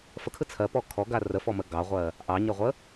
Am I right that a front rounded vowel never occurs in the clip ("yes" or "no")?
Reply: yes